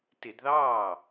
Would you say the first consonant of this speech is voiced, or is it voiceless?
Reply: voiceless